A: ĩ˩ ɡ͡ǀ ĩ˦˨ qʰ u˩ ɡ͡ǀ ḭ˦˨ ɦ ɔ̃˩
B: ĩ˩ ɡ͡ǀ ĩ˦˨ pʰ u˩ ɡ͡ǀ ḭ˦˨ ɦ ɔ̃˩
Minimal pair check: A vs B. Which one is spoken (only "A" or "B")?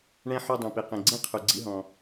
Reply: A